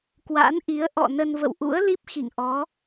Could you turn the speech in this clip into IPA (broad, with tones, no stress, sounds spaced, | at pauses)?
k w a̰˧˥ n ʔ i˨˦ ə̯ ʔ ɔ̰˧˨ n ə˧ n v ə̰˧˨ w ʔ ṵ˧˥ ə̯ l i˦˥ p̚ x ḭ˧˨ ŋ ʔ ɔ˨˦